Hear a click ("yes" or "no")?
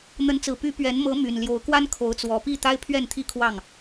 no